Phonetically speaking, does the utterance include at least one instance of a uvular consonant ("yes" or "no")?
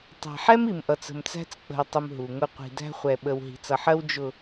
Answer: yes